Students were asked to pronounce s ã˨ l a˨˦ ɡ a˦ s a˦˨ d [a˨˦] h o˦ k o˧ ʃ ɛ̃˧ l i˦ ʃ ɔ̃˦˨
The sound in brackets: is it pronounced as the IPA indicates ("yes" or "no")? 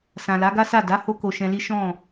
yes